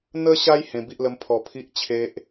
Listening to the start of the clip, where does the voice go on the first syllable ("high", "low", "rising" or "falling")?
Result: high